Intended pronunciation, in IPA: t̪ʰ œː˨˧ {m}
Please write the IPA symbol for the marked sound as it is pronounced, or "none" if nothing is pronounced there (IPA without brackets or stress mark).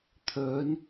n